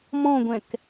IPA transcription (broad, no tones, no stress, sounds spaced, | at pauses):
m ɔ̃ ɡʷ ɛ̃ k